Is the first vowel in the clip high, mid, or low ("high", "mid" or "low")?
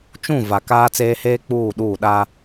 high